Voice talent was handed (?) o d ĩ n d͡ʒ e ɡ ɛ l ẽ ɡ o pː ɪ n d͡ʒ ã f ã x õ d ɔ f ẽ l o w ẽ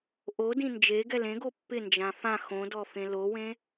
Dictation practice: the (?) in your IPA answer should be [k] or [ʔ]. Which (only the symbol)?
ʔ